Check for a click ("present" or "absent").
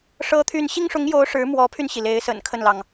absent